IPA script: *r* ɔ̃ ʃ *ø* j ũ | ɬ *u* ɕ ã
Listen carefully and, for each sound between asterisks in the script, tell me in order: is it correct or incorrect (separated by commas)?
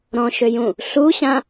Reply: incorrect, correct, correct